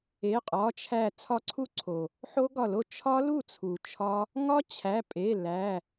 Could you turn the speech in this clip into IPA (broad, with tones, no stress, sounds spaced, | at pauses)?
e˩˧˩ qʼ ɒ˩˧˩ t͡ʃʰ æ˧˩ t͡sʰ ɒ˧ ǀʰ u˦˥ ǀʰ o˩ | ħ o˦˥ ɡ ɒ˧˩ l o˥˩ t͡ʃʰ ɒ˦˥ l u˥˩ t͡sʰ u˩ t͡ʃʰ ɒ˦˥ | ŋ ɒ˦˥ t͡ɕʰ æ˩˧˩ pʼ e˩˧˩ l æ˩˧˩